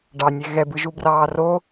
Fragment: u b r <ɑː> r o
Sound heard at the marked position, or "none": ɑː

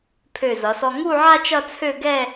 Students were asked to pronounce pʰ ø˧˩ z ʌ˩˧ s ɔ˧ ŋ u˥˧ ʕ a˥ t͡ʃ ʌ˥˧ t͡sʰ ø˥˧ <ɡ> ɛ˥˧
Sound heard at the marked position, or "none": ɡ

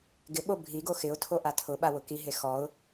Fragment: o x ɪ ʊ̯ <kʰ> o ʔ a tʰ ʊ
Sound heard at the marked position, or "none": tʰ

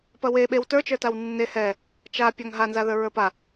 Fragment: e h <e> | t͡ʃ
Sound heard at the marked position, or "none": ɛ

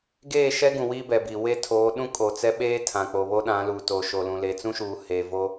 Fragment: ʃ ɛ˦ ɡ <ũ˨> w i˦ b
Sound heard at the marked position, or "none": ũ˨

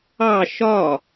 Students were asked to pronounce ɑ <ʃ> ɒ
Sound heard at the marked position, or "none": ʃ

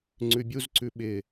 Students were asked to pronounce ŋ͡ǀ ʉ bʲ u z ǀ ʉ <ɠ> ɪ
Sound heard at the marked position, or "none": ɓ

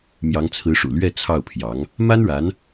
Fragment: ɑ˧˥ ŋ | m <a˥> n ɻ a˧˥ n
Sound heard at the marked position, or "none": a˥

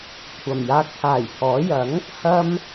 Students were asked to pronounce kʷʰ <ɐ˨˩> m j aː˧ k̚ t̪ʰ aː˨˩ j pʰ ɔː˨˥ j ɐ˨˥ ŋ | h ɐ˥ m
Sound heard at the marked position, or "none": ɐ˨˩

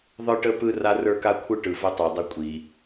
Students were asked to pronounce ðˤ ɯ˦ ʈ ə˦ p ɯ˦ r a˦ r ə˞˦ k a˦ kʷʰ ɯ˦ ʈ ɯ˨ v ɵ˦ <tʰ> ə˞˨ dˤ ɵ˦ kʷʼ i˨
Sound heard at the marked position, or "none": tˤ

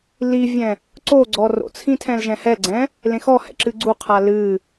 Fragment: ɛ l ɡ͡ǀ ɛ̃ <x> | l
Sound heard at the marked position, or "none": none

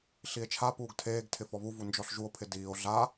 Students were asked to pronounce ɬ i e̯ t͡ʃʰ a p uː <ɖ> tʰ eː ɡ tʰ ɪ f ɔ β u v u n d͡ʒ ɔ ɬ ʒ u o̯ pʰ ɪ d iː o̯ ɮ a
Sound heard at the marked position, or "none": ɡ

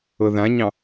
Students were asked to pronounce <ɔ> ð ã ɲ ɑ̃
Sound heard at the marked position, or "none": ɤ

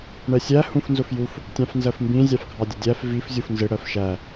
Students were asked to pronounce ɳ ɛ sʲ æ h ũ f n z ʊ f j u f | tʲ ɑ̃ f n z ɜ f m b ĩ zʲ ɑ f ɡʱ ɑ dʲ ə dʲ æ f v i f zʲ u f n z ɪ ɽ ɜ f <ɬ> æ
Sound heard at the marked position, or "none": ʃ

